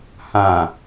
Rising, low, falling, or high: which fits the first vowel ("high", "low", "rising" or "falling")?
low